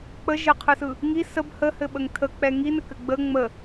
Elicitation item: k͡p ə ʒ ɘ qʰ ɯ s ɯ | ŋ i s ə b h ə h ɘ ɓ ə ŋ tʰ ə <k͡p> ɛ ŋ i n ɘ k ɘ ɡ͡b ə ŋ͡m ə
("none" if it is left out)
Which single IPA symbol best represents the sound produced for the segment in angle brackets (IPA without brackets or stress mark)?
k͡p